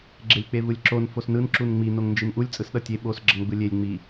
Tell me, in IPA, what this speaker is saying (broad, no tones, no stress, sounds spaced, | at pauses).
ɡ͡ǁ e lʲ k͡p e v ɯ lʲ ǁ o n f o s n ɯ n ǁ u n ŋ͡m i n o ŋ n d͡ʒ i n ʔ u lʲ t͡sʼ ɯ s ɗ ʌ tʲ e ɓ o s ɡ͡ǁ ʌ ŋ ɡ͡b ɯ lʲ e lʲ ŋ͡m i